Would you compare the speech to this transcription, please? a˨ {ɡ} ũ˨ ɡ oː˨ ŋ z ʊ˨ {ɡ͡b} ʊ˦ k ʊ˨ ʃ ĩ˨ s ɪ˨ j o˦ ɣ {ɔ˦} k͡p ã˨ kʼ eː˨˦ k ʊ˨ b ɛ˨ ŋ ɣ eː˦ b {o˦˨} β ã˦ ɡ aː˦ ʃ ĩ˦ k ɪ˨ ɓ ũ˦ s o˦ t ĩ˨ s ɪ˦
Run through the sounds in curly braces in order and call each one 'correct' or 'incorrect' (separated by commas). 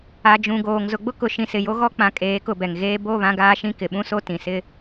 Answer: incorrect, correct, correct, correct